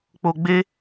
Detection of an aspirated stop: absent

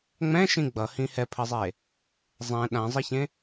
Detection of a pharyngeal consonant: absent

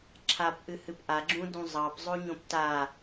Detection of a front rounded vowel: absent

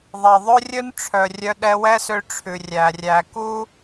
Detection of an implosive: present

